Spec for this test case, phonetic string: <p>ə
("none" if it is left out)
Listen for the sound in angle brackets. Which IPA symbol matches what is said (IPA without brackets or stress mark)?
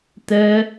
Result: t